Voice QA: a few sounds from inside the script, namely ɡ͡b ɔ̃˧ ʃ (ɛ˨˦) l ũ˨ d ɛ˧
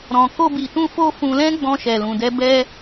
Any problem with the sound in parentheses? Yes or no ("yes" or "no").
yes